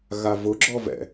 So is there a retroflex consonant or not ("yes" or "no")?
no